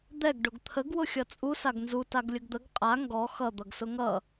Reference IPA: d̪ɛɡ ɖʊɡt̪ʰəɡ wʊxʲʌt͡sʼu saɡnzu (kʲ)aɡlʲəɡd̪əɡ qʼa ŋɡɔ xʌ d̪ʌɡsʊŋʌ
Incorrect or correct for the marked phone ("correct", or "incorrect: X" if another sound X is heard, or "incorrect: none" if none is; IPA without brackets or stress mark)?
incorrect: t